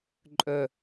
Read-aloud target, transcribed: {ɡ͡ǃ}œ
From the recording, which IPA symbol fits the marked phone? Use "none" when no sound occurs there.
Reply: ǃʼ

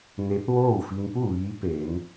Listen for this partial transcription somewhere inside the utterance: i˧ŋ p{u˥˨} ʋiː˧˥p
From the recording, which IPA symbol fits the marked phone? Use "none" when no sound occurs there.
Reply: u˥˨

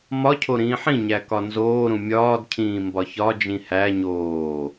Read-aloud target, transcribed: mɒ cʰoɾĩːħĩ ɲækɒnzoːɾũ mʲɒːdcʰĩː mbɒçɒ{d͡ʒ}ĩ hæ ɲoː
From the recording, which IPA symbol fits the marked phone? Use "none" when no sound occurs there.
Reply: d͡ʒ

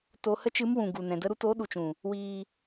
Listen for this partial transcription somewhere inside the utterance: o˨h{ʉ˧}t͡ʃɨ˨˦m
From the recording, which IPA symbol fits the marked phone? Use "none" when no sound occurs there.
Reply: ə˧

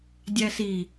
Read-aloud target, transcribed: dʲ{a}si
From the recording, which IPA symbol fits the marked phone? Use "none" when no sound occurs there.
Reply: æ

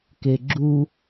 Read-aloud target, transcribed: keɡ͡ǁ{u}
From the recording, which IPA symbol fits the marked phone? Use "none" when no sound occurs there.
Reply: u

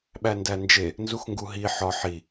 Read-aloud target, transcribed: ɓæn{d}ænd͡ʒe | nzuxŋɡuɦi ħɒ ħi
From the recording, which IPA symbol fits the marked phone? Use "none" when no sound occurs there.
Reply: d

